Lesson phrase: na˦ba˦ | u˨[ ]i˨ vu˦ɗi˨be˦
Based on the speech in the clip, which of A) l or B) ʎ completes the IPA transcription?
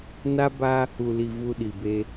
A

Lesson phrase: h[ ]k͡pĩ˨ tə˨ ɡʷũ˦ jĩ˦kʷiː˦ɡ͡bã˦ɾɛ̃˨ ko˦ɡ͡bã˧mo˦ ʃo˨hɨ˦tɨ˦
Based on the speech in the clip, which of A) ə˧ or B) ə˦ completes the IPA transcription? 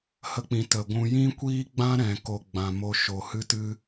A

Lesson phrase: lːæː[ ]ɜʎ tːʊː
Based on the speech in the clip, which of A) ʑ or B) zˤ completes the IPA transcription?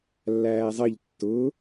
B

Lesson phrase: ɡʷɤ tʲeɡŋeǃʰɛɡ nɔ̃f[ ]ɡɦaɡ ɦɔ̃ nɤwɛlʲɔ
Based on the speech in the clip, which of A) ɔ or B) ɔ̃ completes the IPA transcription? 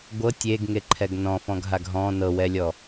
B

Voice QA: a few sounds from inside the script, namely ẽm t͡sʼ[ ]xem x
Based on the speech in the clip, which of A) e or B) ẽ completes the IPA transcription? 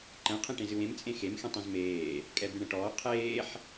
B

